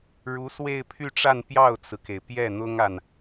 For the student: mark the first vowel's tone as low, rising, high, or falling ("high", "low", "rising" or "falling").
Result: rising